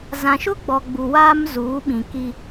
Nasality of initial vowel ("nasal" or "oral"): nasal